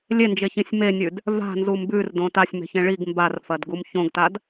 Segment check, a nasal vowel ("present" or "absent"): present